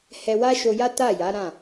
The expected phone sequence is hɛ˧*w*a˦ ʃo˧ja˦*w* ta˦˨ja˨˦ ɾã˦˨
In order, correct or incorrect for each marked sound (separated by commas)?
correct, incorrect